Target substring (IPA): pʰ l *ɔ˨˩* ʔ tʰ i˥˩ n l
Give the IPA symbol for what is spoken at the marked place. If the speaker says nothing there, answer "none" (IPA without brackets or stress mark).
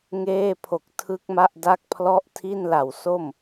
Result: ɔ˥˩